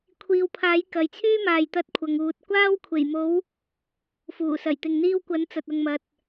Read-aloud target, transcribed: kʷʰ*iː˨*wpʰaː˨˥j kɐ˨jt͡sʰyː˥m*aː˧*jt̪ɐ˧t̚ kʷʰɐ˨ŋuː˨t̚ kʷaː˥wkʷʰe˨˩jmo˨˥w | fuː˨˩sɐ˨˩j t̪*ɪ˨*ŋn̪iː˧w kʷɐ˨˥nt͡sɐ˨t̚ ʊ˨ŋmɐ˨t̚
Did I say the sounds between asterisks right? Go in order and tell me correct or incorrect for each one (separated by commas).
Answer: incorrect, incorrect, correct